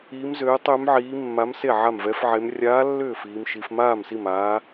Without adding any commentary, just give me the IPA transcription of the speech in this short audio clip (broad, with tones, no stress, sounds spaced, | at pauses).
iː˧˥ m z øː˧˥ tˤ ʏː˧˥ m ʕ iː˧˥ mː a˧˥ m s e˥˩ ʕ a˥˩ m v ɛ˧˥ f ʕ e˧˥ m rʲ aː˧˥ lː ʏː˥˩ f iː˧˥ m ʃ i˧˥ f m aː˥˩ m s i˥˩ m aː˧˥